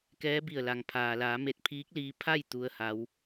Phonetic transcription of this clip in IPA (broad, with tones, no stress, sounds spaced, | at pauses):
k ɛː˧˥ b i˧˩ ə̯ l a˩ ŋ pʰ aː˩ l aː˩˧ m e˧˩ t̚ pʰ iː˧˥ k̚ l iː˧ pʰ a˥˨ j t̪ u˩ ə̯ h a˩˧ w